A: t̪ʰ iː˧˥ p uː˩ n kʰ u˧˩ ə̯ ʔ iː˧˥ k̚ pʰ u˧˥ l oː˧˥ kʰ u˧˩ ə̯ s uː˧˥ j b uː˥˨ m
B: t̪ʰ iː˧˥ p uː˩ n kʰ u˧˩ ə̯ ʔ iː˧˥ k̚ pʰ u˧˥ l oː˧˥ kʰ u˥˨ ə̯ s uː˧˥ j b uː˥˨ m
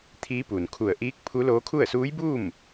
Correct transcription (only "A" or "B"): B